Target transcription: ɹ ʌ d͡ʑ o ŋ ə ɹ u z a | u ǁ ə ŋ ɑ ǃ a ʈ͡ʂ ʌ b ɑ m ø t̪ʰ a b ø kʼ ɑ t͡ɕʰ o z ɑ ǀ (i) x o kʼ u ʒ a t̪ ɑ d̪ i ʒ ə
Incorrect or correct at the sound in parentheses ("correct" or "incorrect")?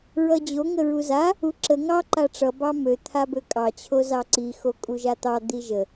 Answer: correct